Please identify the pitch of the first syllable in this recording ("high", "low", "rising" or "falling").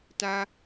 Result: high